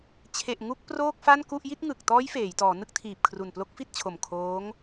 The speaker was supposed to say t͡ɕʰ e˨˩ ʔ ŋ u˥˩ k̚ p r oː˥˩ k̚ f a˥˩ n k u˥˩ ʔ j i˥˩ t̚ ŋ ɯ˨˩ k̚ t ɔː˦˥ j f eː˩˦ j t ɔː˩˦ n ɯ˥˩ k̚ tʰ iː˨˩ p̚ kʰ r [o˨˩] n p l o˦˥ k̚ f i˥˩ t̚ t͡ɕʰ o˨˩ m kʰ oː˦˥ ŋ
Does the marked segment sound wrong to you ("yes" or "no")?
yes